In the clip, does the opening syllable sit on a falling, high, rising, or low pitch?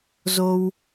high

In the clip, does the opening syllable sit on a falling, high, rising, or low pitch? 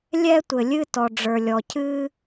high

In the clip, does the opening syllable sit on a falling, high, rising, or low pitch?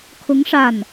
rising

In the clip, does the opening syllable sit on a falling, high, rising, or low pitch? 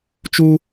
high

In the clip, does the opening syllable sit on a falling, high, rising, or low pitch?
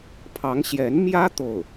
rising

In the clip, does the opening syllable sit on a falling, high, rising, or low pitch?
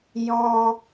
high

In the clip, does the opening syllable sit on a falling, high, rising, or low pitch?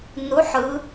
rising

